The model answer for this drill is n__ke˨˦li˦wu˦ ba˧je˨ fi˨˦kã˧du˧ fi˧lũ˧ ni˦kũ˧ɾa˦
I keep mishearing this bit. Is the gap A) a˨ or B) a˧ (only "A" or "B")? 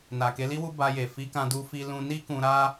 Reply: A